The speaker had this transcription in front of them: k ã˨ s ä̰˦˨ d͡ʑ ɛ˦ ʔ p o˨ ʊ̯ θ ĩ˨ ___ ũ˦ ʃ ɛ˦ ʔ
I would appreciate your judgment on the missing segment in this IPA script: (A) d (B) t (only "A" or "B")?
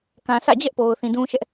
A